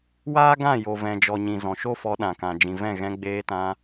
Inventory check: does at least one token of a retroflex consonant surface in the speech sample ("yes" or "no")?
no